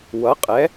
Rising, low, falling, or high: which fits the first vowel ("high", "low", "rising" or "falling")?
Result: rising